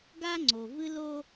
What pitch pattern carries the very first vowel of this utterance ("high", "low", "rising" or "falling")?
high